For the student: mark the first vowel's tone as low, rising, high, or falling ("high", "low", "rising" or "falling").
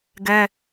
high